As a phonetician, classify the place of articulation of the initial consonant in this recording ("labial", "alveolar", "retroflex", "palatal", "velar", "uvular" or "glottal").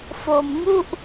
labial